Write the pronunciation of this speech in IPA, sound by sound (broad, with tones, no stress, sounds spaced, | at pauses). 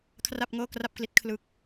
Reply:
kʰ r a˥˩ p̚ ŋ ɤː˥˩ k r a˥˩ p̚ k l i˦˥ t̚ kʰ l ɯ˦˥ k̚